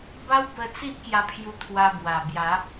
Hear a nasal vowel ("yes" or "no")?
no